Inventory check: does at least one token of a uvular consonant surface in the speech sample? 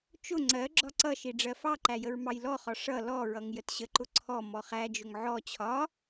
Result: yes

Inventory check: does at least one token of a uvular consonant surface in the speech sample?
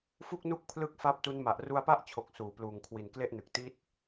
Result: no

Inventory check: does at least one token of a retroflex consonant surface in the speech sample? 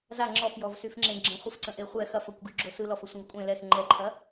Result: no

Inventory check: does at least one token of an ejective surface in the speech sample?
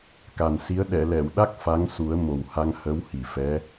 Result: no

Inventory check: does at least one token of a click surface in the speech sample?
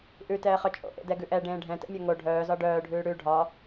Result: no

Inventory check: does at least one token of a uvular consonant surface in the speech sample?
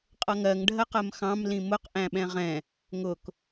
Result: yes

